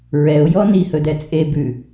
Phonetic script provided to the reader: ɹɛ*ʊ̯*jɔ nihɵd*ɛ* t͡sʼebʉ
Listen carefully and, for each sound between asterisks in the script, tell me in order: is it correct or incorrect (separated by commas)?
correct, correct